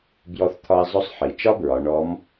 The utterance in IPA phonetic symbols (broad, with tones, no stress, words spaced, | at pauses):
bjɔ˧θt̪ʰɒ˧ɪ̯zˤɵ˧˥sˤħi˩ t͡ʃɒ˥bɹɒ˩˧ ɳɔ˧˥m